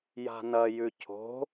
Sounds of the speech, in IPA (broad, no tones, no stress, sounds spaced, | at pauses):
j a̤ n ɐ j ʉ cʰ o̤